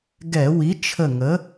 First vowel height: mid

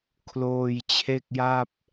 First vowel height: mid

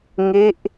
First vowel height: mid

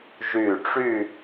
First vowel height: high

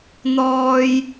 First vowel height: mid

